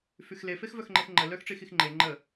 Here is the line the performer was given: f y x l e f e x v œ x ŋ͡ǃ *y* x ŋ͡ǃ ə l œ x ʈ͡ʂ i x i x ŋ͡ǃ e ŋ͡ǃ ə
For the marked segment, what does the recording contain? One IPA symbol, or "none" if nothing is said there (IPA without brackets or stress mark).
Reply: e